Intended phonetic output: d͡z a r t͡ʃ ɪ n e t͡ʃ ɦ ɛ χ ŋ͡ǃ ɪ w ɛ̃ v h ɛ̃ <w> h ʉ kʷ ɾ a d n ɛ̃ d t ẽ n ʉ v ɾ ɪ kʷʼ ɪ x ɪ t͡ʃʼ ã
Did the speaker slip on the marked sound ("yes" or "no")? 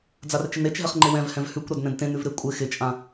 yes